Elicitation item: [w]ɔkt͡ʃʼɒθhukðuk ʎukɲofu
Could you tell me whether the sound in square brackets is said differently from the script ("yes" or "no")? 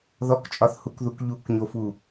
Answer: yes